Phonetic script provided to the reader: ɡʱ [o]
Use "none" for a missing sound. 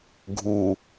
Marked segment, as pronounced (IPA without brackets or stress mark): u